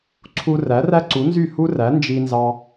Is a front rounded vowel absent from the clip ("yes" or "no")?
no